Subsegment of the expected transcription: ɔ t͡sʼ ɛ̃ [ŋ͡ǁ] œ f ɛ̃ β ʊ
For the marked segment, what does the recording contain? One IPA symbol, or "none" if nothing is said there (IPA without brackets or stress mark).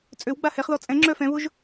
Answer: ŋ͡ǁ